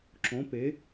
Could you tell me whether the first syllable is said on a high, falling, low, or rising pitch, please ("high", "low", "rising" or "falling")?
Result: rising